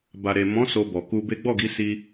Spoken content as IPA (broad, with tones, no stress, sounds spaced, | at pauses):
b a˨ ɾ e˨ m ɔ̃˨˦ s o˧ b ɔ˨ k u˧ b e˦ ɡ͡b ɔ˦˨ ɡ i˨˦ s i˧